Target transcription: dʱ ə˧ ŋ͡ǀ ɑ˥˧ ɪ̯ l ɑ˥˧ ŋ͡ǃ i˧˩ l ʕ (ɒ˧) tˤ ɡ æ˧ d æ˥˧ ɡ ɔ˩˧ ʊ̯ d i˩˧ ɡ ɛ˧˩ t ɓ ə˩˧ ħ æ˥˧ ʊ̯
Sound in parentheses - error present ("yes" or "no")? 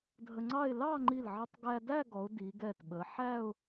yes